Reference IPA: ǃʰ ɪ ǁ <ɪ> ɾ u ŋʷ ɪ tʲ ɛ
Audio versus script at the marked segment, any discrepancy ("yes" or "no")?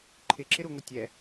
no